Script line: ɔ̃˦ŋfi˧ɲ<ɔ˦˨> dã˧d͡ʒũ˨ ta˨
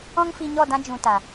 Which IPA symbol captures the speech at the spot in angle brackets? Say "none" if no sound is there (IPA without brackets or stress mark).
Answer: ɔ˦˨